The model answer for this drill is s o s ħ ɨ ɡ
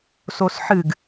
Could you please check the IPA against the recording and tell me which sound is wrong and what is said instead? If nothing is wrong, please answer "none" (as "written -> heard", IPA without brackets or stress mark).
none